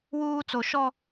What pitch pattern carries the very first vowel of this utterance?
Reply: high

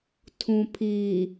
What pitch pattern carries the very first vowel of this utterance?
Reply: low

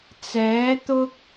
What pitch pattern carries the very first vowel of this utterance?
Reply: rising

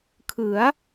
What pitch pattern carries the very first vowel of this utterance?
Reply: rising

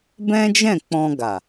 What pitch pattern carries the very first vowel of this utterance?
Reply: high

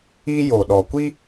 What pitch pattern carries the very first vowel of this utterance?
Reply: high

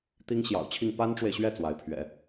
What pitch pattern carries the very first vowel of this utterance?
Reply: high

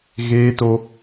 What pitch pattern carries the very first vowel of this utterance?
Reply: high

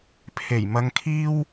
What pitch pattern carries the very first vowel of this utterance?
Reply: low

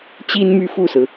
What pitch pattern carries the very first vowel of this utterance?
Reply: high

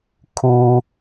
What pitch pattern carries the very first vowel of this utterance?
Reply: high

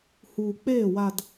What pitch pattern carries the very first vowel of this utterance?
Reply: low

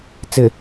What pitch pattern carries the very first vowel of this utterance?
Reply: low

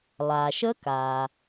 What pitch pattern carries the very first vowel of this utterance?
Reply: low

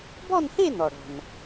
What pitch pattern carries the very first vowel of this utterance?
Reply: falling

